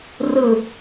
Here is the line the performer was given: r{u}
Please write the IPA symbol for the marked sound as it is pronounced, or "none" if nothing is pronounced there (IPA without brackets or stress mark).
ɯ